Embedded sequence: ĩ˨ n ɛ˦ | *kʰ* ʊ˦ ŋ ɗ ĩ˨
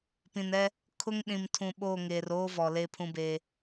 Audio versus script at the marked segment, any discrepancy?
no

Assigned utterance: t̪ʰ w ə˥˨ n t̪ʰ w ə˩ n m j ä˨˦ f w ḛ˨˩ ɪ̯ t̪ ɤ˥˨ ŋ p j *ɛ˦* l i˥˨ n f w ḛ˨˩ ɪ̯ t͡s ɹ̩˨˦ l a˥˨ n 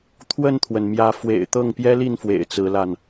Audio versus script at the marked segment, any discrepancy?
no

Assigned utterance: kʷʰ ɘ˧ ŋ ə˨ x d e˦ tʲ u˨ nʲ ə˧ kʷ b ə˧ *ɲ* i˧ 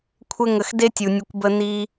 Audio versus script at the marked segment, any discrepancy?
yes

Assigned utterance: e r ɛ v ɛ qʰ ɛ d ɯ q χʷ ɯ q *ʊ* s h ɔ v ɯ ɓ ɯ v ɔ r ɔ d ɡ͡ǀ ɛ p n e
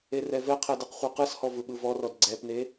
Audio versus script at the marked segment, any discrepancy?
yes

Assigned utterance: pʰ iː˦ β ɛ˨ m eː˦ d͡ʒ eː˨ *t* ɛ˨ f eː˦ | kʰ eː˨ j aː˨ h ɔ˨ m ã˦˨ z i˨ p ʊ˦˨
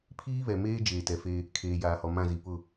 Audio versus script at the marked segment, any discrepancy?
no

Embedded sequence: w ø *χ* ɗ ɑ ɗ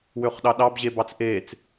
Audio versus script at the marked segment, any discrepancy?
no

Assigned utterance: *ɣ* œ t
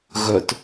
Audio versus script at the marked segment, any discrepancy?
no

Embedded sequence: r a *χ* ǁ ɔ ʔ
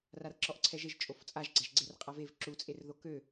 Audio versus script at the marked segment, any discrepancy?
yes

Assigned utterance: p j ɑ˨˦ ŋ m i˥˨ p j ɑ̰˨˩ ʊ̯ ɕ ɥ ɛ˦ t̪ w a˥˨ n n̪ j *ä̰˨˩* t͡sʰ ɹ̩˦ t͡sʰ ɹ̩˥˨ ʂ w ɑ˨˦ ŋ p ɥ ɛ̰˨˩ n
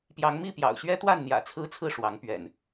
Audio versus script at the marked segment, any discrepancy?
no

